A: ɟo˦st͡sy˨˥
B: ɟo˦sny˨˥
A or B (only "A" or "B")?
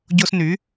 B